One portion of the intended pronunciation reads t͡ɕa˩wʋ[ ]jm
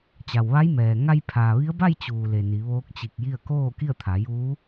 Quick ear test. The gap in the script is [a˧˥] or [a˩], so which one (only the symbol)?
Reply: a˧˥